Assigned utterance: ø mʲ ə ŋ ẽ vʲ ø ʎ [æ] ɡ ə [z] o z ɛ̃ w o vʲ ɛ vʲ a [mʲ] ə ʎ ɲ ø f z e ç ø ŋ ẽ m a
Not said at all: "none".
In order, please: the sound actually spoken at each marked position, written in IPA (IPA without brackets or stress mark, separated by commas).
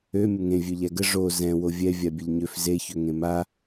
æ, ʐ, bʲ